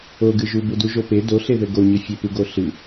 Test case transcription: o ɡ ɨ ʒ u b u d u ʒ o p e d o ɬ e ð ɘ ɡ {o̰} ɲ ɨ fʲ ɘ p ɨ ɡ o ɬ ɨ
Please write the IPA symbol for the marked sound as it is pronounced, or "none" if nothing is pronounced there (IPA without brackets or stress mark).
o